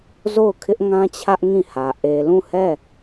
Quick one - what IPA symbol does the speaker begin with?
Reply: z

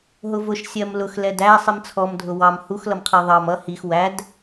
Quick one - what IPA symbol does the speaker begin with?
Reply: ɦ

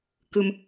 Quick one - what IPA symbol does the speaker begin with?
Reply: k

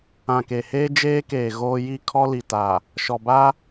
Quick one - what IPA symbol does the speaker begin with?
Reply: ã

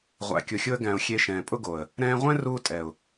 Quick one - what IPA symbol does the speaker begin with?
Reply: ʁʷ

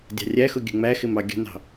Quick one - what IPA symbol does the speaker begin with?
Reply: dʲ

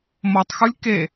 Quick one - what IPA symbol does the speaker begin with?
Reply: m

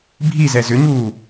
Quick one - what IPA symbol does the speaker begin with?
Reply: bʱ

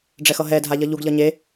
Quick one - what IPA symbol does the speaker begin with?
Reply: ɖ͡ʐ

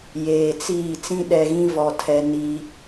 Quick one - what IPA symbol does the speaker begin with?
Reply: j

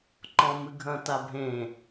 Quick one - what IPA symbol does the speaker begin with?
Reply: ǃ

